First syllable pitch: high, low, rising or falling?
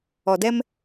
low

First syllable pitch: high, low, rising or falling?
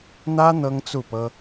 high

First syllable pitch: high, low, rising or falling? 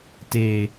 low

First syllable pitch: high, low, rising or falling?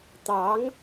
rising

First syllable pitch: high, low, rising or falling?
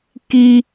high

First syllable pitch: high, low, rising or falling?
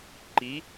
rising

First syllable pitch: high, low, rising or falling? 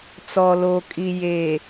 low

